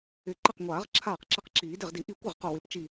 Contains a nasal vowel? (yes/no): no